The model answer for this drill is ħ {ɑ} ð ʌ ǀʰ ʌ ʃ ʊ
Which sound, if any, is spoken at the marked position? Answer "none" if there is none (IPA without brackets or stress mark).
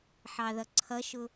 ɑ